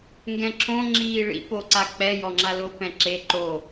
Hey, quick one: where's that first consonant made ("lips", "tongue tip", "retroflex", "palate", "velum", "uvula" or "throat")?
velum